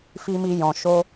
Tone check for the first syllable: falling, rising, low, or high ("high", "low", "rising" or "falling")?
high